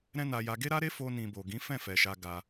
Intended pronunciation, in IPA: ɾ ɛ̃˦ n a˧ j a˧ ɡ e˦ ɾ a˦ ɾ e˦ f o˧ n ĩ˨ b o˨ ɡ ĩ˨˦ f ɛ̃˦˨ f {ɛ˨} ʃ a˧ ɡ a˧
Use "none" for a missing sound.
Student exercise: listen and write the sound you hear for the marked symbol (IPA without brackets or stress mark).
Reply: ɛ˨